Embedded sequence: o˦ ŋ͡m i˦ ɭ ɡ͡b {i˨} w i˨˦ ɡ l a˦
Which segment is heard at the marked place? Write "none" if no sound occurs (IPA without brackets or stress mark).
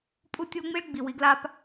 i˨